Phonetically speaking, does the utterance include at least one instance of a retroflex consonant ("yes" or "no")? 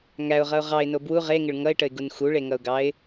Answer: yes